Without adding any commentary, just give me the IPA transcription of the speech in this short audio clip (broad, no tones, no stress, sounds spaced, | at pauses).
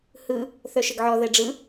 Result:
h ɯ | θ œ ʃ ə ɡ ʕ ɔ ð ɛ ɖ͡ʐ ɯ